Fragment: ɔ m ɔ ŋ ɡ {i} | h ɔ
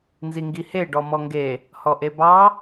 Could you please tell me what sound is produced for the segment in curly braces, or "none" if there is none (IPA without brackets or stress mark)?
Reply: e